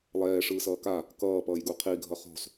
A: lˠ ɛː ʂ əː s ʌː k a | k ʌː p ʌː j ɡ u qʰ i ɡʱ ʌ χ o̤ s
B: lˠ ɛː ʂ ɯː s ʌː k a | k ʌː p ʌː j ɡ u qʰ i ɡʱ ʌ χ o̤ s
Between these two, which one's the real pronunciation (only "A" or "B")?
B